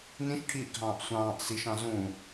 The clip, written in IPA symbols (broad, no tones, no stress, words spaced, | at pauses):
nĩʃʈʰiːʔɡʱɑ̃ːʔ sʷɑ̃ːʔ siʃɑ̃ zũ